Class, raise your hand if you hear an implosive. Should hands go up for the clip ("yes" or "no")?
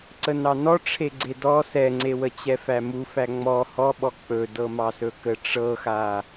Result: yes